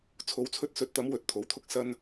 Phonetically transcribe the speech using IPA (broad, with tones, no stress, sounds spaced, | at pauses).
t͡sʰ o˨˥ w t͡sʰ ɵ˧ t̚ s ɵ˨˥ t̚ t̪ ɐ˨˥ m w ɵ˧ t̚ t̪ʰ o˨˥ w t̪ʰ ʊ˧ k̚ s ɐ˧ n